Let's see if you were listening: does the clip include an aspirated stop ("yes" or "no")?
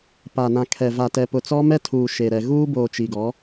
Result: yes